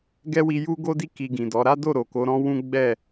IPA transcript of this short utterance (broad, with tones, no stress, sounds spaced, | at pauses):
ɡ ɛ˦ w i˧ j u˦ ɡ o˦ d i˦ k i˧ ɡ ĩ˨ d ɔ˨˦ ɾ a˦ d o˦˨ ɾ o˨ k o˨˦ ɾ ɔ̃˦ w ũ˦ ɡ͡b ɛ˦˨